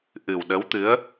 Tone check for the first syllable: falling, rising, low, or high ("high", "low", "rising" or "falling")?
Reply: low